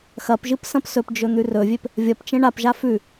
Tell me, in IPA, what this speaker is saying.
x ɐ p ʒ ɨ p s ɐ̃ p s ɵ p d͡ʒ ɵ n̪ ʉ r ɵ vʲ e p | vʲ ɐ p t͡ʃ ẽ ɳ a p ʒ a f ʉ

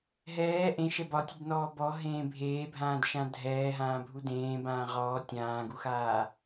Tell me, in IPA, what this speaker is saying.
ɦ ɛː ʔ ẽ ʃ ɛ b ɒ tʲ ɛ d n ɔː b ɔ ɦ ẽː bʱ eː bʱ ãː d ʃ ã dʱ ɛː ɦ ãː bʱ u d ẽː b ãː ʁ ɔː tʲ ãː ɡ u x aː

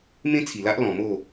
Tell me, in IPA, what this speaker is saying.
m ẽ˦ t͡sʰ i˨˩ l a˦ ʔ l ɔ̃˧ m o˥˧

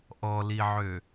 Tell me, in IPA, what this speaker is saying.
ʔ ɔ l i ʕ ø

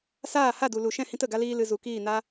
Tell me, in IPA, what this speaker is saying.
s aː˦˨ h a˦˨ d u˨ l u˨ ʃ ɛ̃˦˨ h ĩ˦ t ə˦˨ ɡ a˦ l iː˦ l ɨ˧ z u˨ k iː˦˨ n a˦

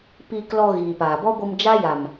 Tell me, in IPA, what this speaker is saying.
p iː˧ k l ɔ˧ ɣ iː˨ p aː˨ b ɔ˦ ɡʷ ɨ˧ m d͡ʒ a˦ j a˨ m

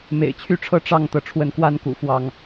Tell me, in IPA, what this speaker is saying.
m ḛ˨˩ ɪ̯ t͡ɕʰ y˥˨ ʈ͡ʂʰ ɤ˥˨ ʈ͡ʂ ɑ˥˨ ŋ t̪ ɤ˩ ʈ͡ʂʰ w ə˨˦ n k w a˦ n k ṵ˨˩ f w ɑ˥˨ ŋ

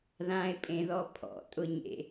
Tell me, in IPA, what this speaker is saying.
ð ã ɪ̯ pʼ ẽ ð ɔ pʰ ɔ̰ tʼ ʊ ɲ ḛ

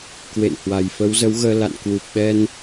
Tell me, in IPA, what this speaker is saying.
k w ḛ˧˨ n h w a˨˩ j f ə˨˦ w z ə˨˦ w ɣ əː˧ l a̰˧˨ n k w u˨˩ p̚ ɓ ɛ˧ n

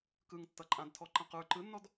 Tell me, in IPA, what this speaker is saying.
k ɯ ŋ tː ʌ ǃʼ ã d tʰ ɔ ǃ ã q ə˞ ǃ ɯ nː ɔ d

